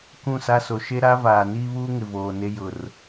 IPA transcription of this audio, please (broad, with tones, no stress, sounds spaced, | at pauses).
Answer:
k ũ˦˨ s a˦ s o˨ ʃ e˦ ɾ a˦ v aː˨ n iː˦ β uː˦ ŋ ɪ˨ v oː˨ n e˦ j ʊ˨ r